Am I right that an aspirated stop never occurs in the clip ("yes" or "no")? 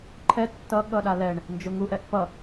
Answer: no